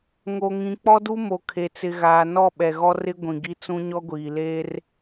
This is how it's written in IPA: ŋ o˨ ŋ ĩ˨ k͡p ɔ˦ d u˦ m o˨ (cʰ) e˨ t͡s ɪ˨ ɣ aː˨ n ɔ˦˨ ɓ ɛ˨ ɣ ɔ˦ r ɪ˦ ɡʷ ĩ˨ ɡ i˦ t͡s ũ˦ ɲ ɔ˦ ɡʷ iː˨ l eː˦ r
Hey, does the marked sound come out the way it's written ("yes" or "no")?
no